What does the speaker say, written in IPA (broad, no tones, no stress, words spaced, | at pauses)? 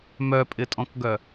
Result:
mœpʼɪtʼɔ̃kɡœ